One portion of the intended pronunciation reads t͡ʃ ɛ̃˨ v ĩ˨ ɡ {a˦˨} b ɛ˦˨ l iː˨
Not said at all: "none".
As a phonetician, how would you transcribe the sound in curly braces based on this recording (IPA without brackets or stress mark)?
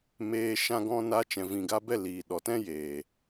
a˧